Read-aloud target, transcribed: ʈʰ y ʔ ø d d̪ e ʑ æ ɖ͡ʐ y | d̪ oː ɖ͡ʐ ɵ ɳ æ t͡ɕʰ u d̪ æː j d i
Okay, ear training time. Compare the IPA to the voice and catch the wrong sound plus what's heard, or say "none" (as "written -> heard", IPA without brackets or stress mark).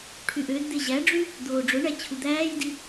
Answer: none